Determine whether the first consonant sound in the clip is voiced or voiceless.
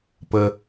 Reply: voiceless